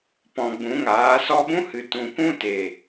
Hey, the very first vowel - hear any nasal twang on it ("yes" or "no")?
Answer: yes